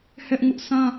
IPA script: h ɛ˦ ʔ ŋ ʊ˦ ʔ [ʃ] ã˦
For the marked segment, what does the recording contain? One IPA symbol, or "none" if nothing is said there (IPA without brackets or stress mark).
s